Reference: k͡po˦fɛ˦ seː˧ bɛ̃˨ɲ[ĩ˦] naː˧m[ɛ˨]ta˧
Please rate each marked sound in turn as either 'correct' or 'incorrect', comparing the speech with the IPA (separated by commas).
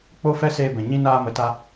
correct, incorrect